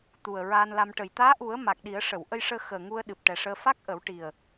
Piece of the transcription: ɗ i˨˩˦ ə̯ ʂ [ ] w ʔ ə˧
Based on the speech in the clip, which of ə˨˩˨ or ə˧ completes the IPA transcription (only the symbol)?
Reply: ə˨˩˨